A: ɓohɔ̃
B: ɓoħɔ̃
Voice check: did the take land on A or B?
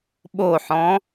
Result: B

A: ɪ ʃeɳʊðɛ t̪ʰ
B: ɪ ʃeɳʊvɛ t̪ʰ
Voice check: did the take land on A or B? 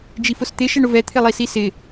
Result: B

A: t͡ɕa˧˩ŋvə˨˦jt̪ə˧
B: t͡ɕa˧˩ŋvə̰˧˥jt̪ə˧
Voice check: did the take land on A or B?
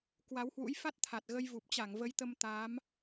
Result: A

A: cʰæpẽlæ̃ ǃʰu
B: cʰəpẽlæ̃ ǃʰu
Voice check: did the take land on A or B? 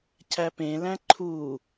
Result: A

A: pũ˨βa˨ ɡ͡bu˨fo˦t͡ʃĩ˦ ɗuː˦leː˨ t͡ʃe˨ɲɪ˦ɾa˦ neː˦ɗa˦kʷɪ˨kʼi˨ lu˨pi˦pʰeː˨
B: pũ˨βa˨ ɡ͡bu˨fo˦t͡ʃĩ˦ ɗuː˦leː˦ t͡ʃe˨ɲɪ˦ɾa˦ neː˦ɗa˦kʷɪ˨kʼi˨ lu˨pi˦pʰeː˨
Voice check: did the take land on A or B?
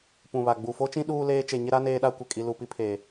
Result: B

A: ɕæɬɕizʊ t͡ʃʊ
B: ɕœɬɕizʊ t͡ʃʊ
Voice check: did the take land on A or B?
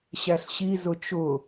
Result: A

